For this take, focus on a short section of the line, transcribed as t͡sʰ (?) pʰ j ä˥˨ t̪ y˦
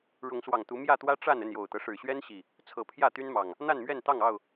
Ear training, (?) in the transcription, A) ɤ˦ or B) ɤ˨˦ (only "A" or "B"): B